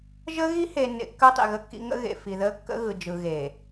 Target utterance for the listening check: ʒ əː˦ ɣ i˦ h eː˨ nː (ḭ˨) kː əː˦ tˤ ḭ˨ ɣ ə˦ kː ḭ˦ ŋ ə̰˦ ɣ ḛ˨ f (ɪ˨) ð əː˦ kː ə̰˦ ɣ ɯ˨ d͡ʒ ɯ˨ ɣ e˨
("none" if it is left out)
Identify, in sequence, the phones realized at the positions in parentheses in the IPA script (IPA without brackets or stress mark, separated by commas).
ḛ˨, i˨